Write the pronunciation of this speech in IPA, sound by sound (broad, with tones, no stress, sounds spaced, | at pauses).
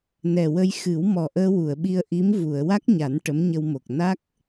n ɛ˨˩ w ə˧ j x ɨ˨˩˦ w m ɔ˨˩ ʔ əː˧ w u˨˩˨ ə̯ ɓ i˧ ə̯ ʔ i˧˥ m v u˨˩˨ ə̯ w a˦˥ k̚ ɲ a˨˩˦ n ʈ ə˧˥ m ɲ ə˧ w m o˨˩ k̚ n a˦˥ k̚